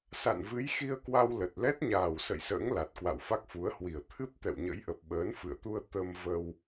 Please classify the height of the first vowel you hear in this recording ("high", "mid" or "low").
low